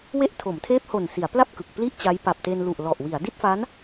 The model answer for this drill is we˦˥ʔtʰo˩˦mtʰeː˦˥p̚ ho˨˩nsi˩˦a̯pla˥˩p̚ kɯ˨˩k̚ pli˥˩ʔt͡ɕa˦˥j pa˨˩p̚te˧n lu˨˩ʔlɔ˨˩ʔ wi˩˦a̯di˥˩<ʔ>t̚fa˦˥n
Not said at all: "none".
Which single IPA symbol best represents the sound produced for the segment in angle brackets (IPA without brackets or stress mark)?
none